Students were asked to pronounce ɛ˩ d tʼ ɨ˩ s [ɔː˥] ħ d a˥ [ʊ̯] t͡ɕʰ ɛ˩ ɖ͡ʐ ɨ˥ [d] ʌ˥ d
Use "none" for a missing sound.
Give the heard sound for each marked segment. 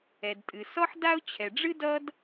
ɔ˥, ʊ̯, d

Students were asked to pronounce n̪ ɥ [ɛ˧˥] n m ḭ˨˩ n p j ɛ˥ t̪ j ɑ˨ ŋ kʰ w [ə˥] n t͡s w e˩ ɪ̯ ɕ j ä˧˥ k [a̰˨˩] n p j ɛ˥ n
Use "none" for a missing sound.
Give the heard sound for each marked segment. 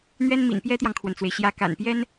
ɛ˥, ə˩, a̰˨˩

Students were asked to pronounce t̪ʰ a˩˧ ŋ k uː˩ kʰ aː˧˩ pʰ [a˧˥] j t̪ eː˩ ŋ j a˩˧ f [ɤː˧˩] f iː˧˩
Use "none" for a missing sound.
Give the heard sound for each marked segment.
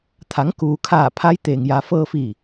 a˧˥, ɤː˧

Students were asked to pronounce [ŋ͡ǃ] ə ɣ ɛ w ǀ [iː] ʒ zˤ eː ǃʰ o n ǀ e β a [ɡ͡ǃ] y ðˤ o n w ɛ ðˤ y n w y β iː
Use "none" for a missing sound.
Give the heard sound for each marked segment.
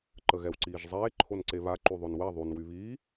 ǃ, iː, ǃ

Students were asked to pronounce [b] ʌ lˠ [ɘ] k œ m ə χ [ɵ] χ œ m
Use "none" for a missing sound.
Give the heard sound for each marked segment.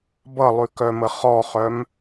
b, ʉ, ɔ

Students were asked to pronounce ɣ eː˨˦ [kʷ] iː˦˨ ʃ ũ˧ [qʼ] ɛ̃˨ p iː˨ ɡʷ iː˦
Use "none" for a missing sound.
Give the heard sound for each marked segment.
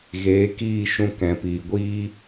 k, k

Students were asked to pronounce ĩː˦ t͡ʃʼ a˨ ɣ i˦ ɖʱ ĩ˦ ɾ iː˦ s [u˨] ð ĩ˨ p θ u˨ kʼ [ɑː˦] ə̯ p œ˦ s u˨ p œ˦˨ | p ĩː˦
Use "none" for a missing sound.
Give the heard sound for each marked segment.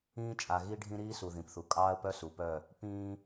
u˨, ɑː˦

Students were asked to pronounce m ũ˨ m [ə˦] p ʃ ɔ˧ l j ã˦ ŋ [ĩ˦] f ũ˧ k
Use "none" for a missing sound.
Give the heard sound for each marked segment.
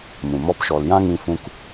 ɔ˦, ĩ˧

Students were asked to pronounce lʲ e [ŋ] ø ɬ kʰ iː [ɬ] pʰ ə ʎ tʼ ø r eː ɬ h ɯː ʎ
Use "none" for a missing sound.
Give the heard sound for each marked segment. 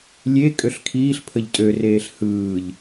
kʼ, ɬ

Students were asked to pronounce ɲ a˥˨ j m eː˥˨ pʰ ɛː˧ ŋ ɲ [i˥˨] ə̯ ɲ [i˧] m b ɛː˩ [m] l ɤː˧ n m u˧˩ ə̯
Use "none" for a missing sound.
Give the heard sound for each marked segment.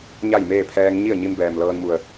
i˥˨, i˧, m

